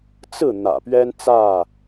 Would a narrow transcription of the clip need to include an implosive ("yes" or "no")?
no